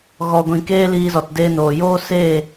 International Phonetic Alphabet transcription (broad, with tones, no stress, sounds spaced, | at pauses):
ɣ ɔ˧ ɡʷ ĩ˧ k eː˦ l iː˧ z ɔ˨ t d eː˧ n oː˨ j oː˦ s eː˦˨